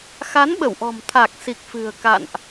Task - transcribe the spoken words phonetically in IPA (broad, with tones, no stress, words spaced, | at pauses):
xa˨˦nɓə˧˩wʔɔ̤˨˩m t̪ʰa˨˩k̚si˨˩k̚ fɨ̤˨˩ə̯ka̰˧˨nʔ